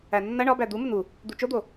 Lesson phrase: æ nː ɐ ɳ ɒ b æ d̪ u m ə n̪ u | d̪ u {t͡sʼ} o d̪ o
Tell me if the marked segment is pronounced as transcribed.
no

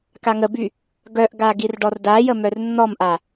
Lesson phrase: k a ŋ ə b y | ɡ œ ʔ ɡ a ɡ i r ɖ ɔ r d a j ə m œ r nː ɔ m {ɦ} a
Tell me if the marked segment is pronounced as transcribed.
no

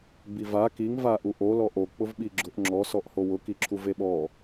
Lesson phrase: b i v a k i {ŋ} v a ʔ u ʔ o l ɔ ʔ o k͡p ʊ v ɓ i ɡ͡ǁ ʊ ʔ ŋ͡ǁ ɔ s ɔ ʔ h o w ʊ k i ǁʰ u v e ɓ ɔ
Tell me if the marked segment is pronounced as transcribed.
yes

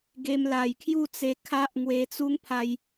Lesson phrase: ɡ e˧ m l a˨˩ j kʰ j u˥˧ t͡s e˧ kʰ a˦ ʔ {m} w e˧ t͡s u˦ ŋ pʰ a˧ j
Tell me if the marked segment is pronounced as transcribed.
no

